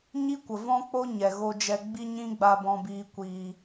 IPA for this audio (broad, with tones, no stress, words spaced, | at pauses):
ɲi˦kʷə˨vɔ̃˦k͡po˦ ɲɛ˨ɣo˧d͡ʒɛ˧ ɡ͡bi˦ɲĩ˦ɡ͡ba˧ bɔ̃˧biː˧ kʷiː˧